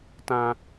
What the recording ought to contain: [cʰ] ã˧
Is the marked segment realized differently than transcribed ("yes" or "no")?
yes